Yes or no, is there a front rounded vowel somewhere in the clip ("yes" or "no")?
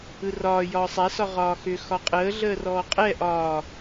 yes